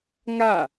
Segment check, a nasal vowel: absent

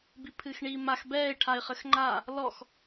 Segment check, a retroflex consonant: present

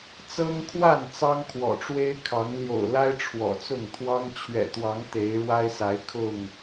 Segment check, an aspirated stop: present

